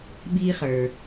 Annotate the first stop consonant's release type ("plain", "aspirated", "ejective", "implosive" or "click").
implosive